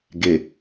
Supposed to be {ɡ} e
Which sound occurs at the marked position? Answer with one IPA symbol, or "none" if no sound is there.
ɡ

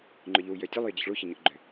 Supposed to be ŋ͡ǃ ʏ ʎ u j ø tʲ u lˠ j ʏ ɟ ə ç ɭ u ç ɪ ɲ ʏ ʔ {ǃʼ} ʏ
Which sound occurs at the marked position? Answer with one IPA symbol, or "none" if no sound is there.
ɡ͡ǃ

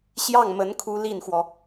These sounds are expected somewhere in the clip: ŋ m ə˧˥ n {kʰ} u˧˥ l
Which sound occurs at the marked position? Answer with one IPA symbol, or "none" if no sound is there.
kʰ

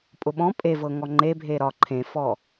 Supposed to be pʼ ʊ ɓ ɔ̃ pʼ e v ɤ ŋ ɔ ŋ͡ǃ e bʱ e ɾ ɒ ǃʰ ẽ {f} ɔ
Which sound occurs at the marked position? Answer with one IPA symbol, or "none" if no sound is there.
f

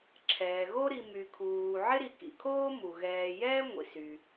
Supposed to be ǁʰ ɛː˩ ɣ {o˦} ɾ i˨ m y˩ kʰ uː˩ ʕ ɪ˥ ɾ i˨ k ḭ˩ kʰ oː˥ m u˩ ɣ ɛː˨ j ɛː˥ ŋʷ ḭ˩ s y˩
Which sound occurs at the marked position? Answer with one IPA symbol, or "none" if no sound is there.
o˦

